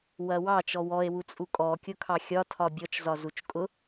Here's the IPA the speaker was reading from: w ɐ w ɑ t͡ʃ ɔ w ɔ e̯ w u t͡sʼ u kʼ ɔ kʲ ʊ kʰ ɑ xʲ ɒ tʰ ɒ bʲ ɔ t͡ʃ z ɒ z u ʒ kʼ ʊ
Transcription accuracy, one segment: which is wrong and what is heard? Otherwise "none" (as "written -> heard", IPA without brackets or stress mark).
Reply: ʒ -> t͡ʃ